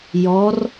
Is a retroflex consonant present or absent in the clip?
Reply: absent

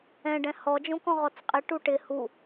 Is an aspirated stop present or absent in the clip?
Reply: absent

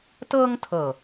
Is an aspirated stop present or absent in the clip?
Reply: present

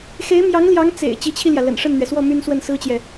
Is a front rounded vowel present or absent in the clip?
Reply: present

